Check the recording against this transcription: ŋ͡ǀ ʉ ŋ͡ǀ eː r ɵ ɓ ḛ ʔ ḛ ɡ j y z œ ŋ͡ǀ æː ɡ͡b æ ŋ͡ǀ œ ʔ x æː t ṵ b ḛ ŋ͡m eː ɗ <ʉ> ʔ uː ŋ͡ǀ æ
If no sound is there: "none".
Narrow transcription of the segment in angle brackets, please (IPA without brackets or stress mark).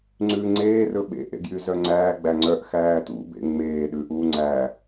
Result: ʉ